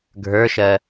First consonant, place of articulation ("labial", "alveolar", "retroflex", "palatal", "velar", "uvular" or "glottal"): velar